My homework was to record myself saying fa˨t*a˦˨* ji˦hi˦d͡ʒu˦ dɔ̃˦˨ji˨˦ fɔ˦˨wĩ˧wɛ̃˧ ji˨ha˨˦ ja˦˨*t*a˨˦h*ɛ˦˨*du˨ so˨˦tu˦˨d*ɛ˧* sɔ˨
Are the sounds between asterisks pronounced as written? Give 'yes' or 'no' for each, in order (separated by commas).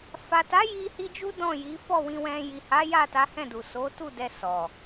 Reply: no, yes, no, yes